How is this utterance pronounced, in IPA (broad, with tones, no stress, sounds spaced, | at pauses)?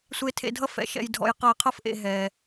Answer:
sʷ e˨ tʰ ḛ˨ dʱ ʌ˦ f ɛ̰˨ ʃ ɛ̰˨ j dʱ ɔ̰˨ j q ʌ˨ ɪ̯ qʰ ʌ˦ f ʔ ḛ˨ ɦ ɛ˨